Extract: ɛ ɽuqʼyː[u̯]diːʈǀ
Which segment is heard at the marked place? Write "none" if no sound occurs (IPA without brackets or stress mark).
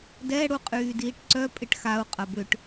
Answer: none